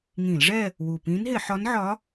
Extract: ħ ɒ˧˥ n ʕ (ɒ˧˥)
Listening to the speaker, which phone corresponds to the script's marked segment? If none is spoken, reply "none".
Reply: ɒ˧˥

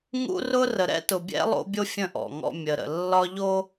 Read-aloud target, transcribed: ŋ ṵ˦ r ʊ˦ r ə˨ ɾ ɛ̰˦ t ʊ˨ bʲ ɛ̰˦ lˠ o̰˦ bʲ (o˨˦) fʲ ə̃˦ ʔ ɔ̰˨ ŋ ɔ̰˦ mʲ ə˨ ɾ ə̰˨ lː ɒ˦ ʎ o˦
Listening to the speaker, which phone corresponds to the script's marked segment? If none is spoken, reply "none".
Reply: o˦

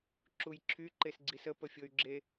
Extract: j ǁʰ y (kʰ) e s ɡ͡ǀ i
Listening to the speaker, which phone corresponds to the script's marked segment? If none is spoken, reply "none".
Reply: ǃ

